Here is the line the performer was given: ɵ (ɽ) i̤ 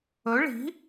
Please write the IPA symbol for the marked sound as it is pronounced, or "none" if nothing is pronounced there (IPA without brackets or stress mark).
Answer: ɭ